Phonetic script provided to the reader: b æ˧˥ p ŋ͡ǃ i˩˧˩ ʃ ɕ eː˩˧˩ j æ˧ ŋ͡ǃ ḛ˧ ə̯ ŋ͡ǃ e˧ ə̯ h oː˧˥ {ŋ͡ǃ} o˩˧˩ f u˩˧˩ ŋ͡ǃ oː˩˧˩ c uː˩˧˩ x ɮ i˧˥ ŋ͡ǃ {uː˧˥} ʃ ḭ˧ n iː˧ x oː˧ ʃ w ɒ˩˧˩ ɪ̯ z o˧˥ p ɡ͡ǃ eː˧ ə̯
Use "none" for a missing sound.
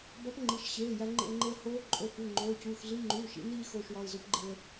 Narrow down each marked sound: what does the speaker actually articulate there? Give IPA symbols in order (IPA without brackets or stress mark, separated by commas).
ǃʼ, uː˩˧˩